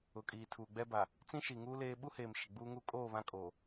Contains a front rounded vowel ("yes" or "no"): no